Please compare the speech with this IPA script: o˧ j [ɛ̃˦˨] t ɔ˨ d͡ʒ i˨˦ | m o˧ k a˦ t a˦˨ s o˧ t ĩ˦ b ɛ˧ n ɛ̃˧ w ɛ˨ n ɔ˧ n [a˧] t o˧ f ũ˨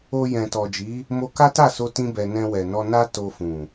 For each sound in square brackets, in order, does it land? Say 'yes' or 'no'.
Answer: no, no

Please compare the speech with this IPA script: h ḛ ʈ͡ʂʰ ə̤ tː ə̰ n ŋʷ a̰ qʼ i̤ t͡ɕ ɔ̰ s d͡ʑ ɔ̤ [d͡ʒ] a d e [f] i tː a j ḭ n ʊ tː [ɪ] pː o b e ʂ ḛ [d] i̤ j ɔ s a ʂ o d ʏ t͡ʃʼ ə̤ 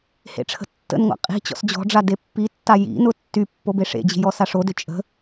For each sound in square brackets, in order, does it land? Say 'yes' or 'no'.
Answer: no, no, no, no

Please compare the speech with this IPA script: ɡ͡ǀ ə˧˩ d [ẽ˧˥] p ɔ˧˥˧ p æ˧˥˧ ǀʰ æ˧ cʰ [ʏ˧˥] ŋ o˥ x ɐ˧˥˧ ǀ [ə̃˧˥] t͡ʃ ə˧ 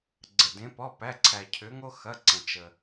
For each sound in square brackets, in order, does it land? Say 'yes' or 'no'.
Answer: yes, yes, no

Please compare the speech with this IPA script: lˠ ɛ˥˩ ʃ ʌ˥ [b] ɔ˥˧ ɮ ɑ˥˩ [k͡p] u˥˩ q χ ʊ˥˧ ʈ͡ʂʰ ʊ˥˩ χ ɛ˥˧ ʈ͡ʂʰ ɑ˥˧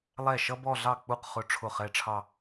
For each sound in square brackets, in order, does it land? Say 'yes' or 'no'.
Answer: yes, yes

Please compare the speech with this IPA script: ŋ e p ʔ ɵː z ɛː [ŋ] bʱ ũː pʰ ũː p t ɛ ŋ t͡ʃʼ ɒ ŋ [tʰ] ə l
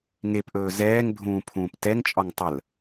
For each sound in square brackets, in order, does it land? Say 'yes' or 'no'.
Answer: yes, no

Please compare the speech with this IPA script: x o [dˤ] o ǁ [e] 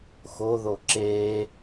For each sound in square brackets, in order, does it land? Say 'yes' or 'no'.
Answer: no, yes

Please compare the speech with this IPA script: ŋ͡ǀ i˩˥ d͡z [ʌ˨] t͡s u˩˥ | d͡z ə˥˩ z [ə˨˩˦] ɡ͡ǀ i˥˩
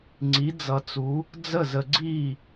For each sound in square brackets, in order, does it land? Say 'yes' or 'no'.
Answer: yes, no

